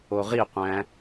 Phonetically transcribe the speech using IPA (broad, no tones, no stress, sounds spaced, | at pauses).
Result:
o ʁ i qʷ æ̃